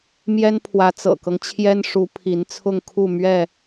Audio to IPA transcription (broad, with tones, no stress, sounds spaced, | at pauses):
m j ɛ˦ n pʰ w ä˨˦ t͡s ɤ̰˨˩ k ɤ˦ ŋ t͡ɕʰ j ɛ˦ n ʂ u˨˦ pʰ i˨˦ n t͡sʰ ʊ˥˨ ŋ kʰ u˥˨ m ɥ ɛ˥˨